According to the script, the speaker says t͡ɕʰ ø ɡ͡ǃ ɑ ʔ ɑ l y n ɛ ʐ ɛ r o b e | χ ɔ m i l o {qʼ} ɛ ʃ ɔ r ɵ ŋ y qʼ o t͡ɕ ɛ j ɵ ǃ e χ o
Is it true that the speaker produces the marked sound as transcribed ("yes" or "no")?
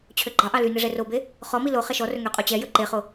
no